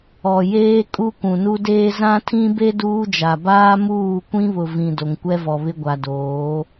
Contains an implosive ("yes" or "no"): no